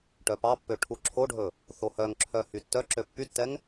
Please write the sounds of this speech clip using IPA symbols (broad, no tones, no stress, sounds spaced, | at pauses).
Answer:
ʈ œ p ɑ pː ø ʈʰ u ǁʰ o ɖʱ ɵ | θ o h œ ŋ ǁʰ œ h y tː œ ǁ ø pː y tː ɛ ŋ